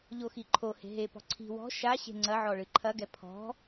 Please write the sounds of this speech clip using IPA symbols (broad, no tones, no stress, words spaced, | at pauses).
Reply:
ʎoxiǃʰohe̤ ɦepɔ̤ ǀʰi̤ wɔ̤ ʃa ɕe̤ŋ͡ǀɐʕɔ ɭɨǃʰɐɡɛ pʰɔ̤